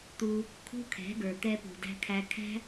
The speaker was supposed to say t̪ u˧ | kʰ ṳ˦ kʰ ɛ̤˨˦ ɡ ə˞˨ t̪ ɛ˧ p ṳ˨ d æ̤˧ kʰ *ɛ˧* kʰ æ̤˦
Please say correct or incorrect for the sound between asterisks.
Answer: incorrect